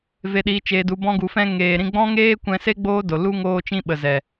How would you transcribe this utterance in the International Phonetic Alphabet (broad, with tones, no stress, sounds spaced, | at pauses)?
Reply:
v e˨ ɗ iː˨ t͡ʃ eː˨ d u˨ b ɔ̃˧ ɡ u˨ f ɛ̃˧ ŋ eː˨ ɾ ĩ˧ ɡ͡b ɔ̃˦ ŋ eː˦ kʷ ɛ̃˧ s e˦ ɡ͡b oː˦ d o˨ l u˦ ŋ oː˧ t͡ʃ ĩ˧ ɓ ə˨ z ɛ˨